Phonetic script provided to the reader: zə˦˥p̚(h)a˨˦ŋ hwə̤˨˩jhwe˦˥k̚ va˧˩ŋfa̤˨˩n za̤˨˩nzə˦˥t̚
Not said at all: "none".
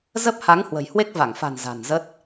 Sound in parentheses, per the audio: h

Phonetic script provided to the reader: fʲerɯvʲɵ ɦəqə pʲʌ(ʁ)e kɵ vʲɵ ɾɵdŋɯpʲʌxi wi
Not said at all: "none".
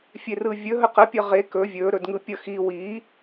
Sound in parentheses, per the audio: ʁ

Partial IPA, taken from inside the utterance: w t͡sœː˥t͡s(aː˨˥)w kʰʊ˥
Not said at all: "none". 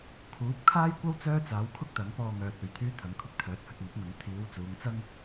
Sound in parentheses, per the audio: aː˨˥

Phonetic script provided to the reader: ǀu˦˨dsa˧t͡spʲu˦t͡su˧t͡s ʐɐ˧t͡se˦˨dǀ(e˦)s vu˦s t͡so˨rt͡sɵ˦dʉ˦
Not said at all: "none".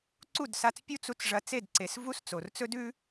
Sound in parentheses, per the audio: e˨˦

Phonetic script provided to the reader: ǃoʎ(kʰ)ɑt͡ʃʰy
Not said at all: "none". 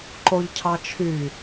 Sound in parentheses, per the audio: cʰ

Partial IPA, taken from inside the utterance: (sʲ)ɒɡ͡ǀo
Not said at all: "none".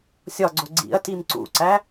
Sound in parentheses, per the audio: sʲ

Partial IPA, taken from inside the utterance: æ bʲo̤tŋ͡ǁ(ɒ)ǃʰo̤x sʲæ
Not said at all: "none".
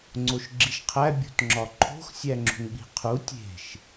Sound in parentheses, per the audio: ɒ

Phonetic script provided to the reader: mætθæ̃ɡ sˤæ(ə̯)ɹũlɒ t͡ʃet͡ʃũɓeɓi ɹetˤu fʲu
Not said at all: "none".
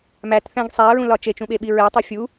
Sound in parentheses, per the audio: ə̯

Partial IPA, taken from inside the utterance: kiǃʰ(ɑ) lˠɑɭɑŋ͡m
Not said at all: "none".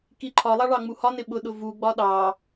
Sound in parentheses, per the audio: ɒ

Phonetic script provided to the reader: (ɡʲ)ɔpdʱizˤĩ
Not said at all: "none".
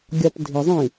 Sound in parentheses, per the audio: ɡʲ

